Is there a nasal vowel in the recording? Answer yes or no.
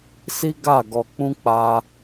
yes